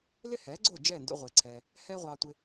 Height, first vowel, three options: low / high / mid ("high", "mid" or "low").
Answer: high